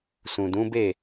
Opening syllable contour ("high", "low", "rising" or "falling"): low